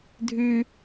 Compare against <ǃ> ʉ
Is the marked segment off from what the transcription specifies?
yes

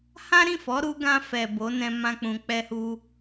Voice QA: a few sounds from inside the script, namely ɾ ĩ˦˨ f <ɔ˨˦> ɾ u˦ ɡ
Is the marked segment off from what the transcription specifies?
no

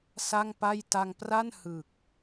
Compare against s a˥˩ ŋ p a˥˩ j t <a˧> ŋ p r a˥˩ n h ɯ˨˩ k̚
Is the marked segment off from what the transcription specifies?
no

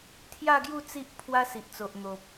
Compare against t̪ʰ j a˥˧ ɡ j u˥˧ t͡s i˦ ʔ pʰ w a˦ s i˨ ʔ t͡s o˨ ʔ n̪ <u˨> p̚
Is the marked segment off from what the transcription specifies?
yes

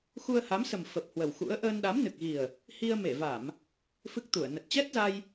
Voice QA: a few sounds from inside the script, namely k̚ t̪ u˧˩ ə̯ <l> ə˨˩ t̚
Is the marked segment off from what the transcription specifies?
yes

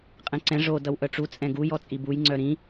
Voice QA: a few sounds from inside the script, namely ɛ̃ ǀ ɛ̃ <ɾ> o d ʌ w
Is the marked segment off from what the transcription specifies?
yes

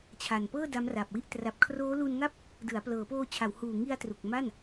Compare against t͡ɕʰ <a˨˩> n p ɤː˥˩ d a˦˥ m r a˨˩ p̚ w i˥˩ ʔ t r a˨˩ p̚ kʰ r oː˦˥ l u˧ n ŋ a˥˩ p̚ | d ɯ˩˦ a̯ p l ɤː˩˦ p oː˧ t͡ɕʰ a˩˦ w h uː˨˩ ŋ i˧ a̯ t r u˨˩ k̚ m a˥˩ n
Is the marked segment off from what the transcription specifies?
no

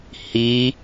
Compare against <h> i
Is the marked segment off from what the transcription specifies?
no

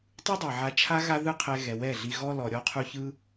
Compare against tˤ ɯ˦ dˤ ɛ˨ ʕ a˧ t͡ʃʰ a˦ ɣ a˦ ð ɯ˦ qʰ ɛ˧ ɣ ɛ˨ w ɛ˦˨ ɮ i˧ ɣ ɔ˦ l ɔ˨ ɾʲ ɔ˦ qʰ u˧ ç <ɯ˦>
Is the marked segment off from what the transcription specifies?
no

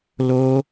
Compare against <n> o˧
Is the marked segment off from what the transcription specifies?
yes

